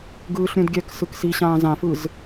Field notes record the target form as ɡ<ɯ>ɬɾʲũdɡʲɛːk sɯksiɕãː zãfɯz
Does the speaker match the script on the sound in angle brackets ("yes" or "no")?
no